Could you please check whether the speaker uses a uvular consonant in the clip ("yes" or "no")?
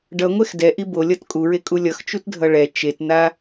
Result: no